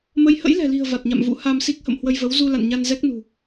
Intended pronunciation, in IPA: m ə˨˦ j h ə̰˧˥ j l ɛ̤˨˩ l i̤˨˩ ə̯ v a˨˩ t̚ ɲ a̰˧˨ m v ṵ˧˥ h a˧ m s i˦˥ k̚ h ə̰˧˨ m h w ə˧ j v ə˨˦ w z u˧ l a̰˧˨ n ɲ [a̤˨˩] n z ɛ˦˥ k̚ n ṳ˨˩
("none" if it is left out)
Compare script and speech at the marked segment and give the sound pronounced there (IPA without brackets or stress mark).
a˧